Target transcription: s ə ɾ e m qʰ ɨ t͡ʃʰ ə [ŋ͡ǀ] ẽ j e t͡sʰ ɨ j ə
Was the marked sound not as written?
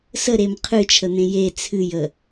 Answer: yes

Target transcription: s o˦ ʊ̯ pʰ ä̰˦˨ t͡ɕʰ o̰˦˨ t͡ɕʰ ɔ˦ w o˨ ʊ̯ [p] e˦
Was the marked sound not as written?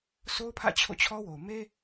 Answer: yes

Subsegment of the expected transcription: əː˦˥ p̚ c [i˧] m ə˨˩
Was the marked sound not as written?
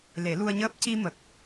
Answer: no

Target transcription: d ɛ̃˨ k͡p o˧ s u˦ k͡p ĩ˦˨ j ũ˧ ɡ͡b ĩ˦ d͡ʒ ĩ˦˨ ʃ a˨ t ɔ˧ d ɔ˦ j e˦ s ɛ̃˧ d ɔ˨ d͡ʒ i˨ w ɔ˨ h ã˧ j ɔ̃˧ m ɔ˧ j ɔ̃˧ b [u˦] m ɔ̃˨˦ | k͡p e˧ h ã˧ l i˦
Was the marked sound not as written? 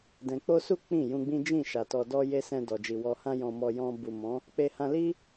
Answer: yes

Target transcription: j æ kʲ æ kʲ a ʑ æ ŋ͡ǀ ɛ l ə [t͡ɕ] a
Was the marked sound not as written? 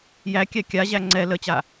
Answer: no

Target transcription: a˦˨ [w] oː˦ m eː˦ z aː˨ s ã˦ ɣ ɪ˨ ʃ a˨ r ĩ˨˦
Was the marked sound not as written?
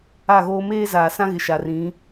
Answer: yes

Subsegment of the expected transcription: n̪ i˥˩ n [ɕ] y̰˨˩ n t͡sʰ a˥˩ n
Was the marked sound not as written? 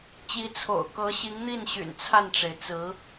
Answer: no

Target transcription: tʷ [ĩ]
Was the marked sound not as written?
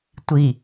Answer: yes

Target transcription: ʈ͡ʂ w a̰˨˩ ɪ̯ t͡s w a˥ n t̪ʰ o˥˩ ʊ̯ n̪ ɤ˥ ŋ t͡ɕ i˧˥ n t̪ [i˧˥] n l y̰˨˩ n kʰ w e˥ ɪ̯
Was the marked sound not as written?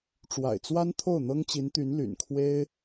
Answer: yes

